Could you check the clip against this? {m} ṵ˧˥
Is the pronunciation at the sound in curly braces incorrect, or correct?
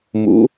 correct